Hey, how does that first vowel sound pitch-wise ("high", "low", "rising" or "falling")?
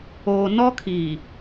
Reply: low